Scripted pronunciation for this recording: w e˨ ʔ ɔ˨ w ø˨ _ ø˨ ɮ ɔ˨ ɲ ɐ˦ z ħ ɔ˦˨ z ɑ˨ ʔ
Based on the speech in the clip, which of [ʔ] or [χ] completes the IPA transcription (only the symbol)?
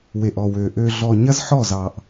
ʔ